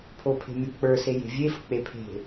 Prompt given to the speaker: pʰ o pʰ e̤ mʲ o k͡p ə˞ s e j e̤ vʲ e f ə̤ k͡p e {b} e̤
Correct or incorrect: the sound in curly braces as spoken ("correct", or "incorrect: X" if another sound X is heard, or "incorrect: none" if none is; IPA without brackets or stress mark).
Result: incorrect: pʰ